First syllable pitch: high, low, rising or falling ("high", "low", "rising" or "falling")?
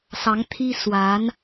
rising